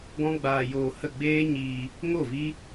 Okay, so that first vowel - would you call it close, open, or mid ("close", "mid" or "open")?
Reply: mid